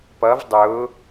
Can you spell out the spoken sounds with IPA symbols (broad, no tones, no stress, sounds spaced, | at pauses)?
p ʌ v dˤ ʊ